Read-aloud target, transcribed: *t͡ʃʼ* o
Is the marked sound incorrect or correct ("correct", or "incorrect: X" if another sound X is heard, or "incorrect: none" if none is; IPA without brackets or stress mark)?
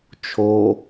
incorrect: t͡ʃʰ